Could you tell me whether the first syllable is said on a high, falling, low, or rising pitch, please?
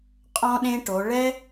high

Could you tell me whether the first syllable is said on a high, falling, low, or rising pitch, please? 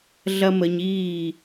high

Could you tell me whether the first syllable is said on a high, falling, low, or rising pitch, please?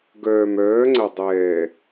low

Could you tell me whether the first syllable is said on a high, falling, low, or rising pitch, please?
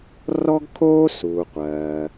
high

